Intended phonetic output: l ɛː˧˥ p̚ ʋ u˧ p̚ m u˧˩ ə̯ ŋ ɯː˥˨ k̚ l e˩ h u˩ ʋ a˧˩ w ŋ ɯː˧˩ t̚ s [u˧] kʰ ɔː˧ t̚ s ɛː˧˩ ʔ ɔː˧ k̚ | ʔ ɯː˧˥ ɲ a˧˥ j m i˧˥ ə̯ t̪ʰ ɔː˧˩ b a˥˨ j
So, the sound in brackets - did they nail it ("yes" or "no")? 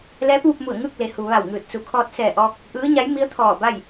no